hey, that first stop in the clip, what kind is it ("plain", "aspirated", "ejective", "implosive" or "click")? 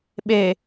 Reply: implosive